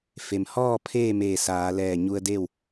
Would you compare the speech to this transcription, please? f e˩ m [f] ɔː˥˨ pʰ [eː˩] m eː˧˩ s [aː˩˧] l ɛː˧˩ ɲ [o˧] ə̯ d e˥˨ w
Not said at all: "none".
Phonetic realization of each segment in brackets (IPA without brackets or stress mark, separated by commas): h, eː˥˨, aː˩˧, u˧